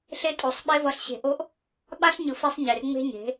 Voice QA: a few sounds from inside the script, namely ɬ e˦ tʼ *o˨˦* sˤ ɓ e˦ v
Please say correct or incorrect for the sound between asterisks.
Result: correct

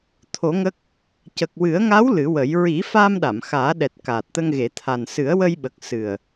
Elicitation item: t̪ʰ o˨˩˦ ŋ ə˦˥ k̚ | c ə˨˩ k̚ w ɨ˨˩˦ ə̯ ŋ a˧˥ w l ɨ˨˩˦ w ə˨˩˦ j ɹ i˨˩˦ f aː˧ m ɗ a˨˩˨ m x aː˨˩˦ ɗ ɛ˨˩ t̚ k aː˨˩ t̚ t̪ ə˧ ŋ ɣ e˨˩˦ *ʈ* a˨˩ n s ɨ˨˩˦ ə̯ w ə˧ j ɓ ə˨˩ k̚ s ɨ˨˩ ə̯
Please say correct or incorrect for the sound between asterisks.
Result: incorrect: t̪ʰ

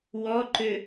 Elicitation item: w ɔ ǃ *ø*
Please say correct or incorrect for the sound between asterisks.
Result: correct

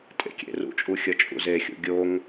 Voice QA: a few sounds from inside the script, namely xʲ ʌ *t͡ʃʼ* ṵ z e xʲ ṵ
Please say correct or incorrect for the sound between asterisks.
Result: correct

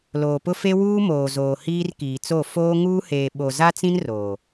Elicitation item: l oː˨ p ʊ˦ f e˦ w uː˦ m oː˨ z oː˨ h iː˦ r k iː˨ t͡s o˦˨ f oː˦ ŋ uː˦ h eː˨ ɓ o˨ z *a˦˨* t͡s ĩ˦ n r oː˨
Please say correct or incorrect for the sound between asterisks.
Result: incorrect: a˦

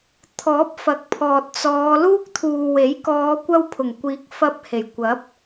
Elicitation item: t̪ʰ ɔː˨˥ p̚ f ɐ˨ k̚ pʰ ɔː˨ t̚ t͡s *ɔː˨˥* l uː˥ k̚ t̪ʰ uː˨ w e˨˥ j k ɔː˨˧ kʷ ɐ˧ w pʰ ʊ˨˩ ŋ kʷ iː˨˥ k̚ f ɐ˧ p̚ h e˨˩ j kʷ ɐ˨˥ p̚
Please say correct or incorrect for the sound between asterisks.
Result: incorrect: ɔː˨˧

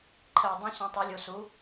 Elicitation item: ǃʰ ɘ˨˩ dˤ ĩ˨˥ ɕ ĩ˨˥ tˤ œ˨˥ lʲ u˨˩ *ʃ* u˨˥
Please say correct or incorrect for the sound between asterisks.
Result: incorrect: s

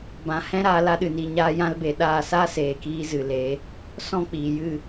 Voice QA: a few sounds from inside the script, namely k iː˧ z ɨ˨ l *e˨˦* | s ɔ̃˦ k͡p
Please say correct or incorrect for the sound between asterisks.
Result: correct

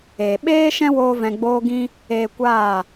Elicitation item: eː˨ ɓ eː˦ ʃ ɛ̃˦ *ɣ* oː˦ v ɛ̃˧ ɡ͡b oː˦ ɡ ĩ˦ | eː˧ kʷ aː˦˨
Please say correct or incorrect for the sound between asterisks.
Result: incorrect: w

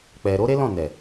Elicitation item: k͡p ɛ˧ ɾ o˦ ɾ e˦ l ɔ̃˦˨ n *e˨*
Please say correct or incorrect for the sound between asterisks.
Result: incorrect: ɛ˨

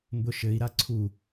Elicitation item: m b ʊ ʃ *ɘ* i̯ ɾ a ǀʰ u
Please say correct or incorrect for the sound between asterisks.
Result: correct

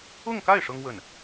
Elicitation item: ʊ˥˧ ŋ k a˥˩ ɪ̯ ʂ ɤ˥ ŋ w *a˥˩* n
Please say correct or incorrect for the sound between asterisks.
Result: incorrect: ə˥˩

